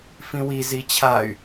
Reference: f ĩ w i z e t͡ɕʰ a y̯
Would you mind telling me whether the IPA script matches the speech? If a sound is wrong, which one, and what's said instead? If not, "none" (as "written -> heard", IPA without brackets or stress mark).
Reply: e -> i